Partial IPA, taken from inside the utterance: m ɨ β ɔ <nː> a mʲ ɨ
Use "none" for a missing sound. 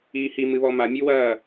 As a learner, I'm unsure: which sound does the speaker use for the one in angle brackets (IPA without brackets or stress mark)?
m